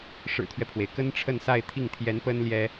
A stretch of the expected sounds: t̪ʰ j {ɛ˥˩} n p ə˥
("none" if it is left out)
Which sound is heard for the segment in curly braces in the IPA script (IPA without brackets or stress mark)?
ɛ˧˥